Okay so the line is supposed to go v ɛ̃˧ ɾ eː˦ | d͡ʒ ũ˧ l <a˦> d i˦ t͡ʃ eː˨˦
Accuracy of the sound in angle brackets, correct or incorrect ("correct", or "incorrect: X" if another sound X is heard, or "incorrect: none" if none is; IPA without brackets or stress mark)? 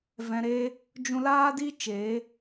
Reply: incorrect: aː˦